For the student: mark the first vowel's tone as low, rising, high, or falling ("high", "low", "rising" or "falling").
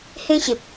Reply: high